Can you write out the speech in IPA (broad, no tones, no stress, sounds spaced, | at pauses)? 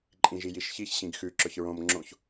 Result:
ǃʼ ĩ ʒ i j i ʃ ç i ç ɕ ĩ ɡ x ʉ ǁ ɵ ç ɹ õ m ŋ͡ǁ õ ç